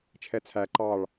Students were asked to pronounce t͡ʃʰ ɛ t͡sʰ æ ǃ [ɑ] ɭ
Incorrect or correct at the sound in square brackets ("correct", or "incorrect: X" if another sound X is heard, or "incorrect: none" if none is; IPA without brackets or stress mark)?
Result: correct